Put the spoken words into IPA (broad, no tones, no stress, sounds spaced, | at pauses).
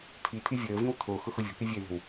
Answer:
t̪ʰ i t̪ʰ i vʲ əː v ĩ w t̪ʰ o x ʊ x ʊ vʲ o̤ k i vʲ e ð o̤ w